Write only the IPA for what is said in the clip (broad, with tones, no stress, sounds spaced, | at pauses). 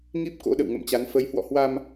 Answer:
ŋ i˦˥ p̚ k o̰˧˥ ɗ ə̰˧˨ w ŋ ə̰˧˨ m t͡ɕ a˨˦ n f ə˨˦ j h w ɔ̰˧˨ h w a˧ m